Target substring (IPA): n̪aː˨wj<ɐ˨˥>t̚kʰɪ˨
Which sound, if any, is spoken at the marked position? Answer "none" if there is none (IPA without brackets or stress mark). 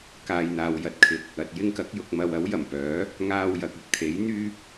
ɐ˧